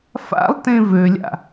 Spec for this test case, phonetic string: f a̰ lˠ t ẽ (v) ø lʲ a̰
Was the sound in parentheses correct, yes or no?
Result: yes